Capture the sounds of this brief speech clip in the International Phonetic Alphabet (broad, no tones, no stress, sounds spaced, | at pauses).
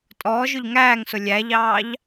tʼ ɔː ʒ ʊ ʎ ŋ æː ŋ s ʊ lʲ æ ʎ ɑː ʎ